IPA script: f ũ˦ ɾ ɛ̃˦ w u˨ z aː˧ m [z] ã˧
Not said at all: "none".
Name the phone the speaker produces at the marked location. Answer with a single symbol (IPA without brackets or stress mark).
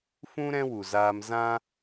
z